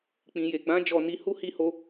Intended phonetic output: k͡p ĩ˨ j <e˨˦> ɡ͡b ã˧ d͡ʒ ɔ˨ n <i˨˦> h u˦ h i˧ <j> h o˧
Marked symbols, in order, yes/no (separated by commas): no, yes, no